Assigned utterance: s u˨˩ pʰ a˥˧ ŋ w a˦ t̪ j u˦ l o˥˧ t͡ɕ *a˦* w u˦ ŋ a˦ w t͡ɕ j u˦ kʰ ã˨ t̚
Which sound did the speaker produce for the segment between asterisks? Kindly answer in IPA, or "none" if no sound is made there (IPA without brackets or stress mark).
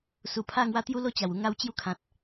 a˨˩